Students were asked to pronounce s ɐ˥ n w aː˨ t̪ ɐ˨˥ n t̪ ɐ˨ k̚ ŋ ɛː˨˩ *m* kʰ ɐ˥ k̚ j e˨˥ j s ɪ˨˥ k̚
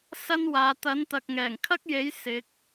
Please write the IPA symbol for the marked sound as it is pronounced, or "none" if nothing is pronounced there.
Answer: ŋ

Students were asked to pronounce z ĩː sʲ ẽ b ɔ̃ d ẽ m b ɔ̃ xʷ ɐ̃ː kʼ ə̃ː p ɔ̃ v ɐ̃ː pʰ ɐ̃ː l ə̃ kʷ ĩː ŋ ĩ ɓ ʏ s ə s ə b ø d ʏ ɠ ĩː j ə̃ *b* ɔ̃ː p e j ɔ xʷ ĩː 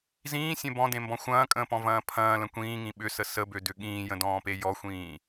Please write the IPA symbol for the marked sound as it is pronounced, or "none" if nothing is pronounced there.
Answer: d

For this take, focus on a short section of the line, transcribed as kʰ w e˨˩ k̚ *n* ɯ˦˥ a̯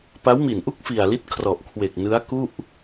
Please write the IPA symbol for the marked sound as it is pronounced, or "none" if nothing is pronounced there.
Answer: n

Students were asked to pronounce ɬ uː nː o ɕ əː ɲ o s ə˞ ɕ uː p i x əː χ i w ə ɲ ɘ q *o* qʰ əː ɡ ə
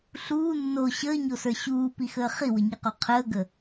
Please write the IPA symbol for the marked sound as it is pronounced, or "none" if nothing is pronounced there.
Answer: o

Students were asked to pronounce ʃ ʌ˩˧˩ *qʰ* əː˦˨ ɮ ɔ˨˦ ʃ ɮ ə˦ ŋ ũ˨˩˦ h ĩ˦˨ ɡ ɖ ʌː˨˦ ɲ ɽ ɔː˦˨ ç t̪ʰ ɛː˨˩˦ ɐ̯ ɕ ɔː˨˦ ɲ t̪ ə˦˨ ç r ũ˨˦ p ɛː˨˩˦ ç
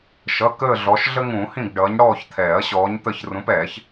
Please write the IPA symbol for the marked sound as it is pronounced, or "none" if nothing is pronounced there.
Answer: k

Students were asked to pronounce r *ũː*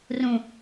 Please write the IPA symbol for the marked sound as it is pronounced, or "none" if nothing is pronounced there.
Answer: ũ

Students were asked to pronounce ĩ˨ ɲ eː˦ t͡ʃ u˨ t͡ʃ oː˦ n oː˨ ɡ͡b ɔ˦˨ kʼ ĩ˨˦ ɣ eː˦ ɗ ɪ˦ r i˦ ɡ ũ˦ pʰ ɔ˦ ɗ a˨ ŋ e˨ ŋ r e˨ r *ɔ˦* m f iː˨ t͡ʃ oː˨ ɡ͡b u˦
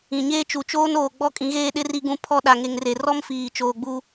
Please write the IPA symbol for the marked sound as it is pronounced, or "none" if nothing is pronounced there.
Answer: ɔ˦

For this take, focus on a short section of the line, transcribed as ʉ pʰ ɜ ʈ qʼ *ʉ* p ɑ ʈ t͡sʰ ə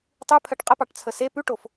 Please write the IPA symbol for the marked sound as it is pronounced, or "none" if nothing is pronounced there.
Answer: ə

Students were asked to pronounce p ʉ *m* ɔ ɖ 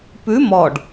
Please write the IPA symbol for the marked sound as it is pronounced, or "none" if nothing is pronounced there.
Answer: m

